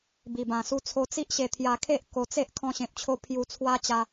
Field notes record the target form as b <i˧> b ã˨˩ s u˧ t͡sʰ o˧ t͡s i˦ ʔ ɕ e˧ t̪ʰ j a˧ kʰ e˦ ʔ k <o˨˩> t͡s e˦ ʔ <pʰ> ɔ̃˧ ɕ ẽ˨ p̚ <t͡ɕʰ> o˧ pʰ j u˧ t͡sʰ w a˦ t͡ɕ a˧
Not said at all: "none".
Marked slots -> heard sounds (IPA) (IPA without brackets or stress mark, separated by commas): i˨˩, o˧, kʰ, t͡ɕʰ